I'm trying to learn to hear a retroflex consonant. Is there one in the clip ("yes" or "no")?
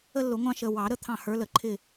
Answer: no